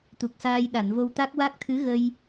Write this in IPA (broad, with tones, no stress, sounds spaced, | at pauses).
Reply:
t̪ u˨˩ k̚ s aː˧ j ɗ a˨˩˨ n v o˧ w t̪ a˦˥ k̚ w a˦˥ k̚ t̪ʰ ɨ˧˥ ɣ ə˧ j